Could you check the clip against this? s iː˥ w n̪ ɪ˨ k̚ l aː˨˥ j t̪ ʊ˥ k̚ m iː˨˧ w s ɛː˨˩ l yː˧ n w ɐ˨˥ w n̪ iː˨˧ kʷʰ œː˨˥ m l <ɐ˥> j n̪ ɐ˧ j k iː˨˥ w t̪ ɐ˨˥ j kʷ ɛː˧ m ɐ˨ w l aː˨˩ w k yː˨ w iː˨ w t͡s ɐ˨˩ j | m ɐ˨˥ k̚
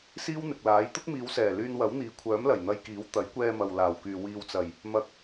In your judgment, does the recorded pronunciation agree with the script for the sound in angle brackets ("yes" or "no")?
no